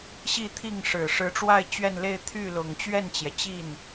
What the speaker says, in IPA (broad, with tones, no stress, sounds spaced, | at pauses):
ɕ i˥˧ t̪ʰ i˥˩ ŋ ʂ ɻ̩˨˩ ʂ ɻ̩˧˥ ʈ͡ʂ w a˥˧ ɪ̯ t͡ɕ ɥ ɛ˥˧ n l e˥˧ ɪ̯ t̪ʰ y˥˩ l ʊ˨˩ ŋ t͡ɕ ɥ ɛ˥˩ n t͡ɕ j ɛ˩ t͡ɕ i˥˩ n